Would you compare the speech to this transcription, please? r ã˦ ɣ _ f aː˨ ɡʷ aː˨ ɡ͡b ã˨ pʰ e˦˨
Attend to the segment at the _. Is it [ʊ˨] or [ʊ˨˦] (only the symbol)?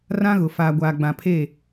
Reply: ʊ˨